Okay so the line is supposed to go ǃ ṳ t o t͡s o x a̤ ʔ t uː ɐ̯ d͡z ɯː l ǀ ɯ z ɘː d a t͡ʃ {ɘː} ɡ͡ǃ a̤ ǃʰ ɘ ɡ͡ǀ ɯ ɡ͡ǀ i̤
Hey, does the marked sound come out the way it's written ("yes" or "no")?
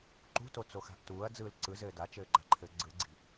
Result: yes